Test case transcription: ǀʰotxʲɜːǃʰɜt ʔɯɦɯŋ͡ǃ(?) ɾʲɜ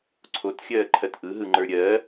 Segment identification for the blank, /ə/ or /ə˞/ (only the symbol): ə˞